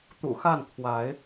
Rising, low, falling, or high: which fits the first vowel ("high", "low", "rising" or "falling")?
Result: low